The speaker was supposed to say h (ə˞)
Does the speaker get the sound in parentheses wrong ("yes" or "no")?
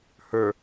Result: no